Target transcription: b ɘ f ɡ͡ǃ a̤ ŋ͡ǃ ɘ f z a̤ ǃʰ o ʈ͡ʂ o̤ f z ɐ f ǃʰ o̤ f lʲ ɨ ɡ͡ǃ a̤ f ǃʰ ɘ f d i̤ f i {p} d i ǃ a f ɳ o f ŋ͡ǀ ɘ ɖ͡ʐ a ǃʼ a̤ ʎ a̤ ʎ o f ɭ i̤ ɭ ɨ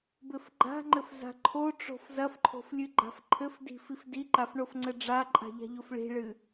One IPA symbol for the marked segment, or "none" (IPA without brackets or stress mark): f